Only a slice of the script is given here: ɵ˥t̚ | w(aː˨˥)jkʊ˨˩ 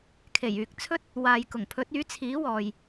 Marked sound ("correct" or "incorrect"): incorrect